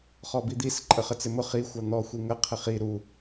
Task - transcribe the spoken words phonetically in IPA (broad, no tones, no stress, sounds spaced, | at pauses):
χ ɔ b i d̪ i s ǃʼ ə χ ə t͡s ɪ m ʊ χ i xʷ ɑ n̪ ɔ xʷ i ŋ ə qʰ ɪ χ i ɾ u